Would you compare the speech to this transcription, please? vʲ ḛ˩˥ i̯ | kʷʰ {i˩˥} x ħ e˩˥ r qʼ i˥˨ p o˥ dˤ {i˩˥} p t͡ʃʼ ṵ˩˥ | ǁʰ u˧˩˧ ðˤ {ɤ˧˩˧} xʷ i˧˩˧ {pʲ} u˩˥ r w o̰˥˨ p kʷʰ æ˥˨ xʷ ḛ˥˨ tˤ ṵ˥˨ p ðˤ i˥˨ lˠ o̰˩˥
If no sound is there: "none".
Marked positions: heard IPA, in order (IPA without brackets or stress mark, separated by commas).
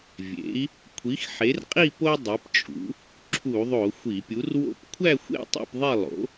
i˩˥, i˩˥, o˧˩˧, pʲ